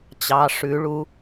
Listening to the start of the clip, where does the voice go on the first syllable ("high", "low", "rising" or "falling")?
rising